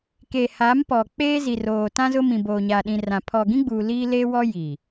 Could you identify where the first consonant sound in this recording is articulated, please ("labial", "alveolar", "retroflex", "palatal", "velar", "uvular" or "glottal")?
velar